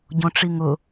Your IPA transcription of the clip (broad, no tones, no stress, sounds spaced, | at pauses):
ɟ õ ʈ͡ʂ i ŋ ʊ